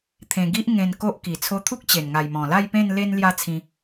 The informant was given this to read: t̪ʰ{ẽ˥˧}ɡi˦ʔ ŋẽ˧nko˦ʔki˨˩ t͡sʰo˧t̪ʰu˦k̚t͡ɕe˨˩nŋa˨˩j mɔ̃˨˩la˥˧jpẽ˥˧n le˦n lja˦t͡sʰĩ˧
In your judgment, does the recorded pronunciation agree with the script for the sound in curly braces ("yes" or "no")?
no